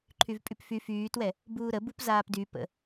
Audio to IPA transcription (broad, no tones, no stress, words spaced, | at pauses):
ǃʰyvpʼypfy fyːtwɛ | buːɾə bupzaːpdy pə̰